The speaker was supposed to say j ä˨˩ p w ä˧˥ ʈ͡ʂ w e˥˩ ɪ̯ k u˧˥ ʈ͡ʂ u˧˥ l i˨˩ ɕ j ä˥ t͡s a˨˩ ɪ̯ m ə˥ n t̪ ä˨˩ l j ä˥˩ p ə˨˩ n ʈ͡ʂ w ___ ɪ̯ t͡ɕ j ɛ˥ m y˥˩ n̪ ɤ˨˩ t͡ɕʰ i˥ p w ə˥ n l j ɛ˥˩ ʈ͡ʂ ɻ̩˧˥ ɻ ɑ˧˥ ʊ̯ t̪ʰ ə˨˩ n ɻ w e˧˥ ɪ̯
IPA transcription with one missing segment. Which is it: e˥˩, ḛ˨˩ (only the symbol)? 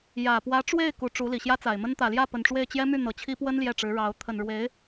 e˥˩